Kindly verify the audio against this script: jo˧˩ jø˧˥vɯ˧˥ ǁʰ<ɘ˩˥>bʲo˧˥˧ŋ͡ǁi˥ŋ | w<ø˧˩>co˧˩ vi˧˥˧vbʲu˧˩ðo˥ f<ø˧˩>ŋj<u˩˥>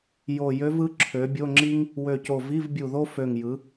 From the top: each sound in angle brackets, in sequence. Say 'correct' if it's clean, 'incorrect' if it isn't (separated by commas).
incorrect, correct, correct, incorrect